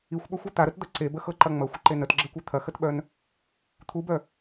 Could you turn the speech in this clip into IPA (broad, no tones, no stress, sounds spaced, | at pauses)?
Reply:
i xʷ ɓ œ xʷ u t̪ a ɾ ə t d̪ ɐ ǀ e b ə x ɤ ǃ ɐ ŋ͡m ɐ xʷ ə ǃ e n ə t ɡ͡ǁ ə kʷ œ t̪ʰ ɐ x ə t ɓ œ n | t̪ʰ u b œ